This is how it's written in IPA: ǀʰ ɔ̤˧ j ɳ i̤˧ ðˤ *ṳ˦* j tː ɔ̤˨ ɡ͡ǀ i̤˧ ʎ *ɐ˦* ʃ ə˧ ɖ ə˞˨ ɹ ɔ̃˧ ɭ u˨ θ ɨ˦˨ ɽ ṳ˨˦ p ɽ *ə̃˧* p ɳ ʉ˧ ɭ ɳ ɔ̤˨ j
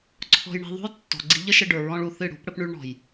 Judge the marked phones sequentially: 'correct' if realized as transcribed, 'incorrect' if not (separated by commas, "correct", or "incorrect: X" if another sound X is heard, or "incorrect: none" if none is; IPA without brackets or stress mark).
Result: correct, incorrect: ə˦, incorrect: ə˧